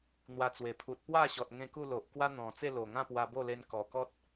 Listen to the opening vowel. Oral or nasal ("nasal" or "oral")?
oral